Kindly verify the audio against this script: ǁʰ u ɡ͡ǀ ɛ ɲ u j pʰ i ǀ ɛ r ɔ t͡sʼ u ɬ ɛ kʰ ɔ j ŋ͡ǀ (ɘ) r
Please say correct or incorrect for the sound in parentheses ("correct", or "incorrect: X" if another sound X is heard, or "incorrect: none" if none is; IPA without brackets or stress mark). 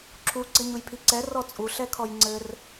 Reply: correct